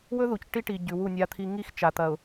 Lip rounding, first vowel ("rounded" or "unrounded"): rounded